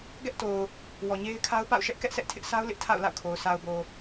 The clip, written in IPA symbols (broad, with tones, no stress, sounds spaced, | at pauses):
ɡ ɛ˦ ʔ t o˨ ʊ̯ | w ɔ˨ ɲ e˦ ɪ̯ kʰ a˦ ʊ̯ p a̰˦˨ ʊ̯ ʃ ɛ˦ ʔ k ɛ˦ ʔ s ɛ˦ ʔ tʰ ɪ˦ ʔ sʰ a˦ ʊ̯ l ɪ˦ ʔ tʰ a̰˦˨ ʊ̯ l a̰˦˨ ʊ̯ kʰ o˨ ʊ̯ sʰ a˨ ʊ̯ b o˨